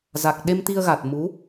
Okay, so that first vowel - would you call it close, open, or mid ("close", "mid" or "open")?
open